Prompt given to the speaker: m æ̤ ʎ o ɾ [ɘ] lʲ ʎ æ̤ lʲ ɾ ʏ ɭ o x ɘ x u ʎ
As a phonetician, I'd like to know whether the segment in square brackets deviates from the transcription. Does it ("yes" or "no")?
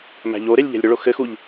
yes